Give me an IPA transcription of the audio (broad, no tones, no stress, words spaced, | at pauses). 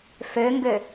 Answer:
føŋɡø